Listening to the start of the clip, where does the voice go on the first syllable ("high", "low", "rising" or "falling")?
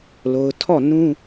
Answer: high